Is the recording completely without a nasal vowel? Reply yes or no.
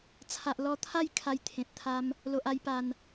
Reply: no